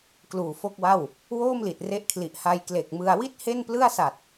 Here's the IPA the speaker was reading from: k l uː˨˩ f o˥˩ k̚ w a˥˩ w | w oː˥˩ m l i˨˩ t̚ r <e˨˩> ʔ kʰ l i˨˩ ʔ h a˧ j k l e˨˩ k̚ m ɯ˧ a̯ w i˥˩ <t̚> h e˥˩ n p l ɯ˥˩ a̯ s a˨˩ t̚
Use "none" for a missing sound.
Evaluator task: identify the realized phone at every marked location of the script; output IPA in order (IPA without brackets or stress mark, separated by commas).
e˦˥, t̚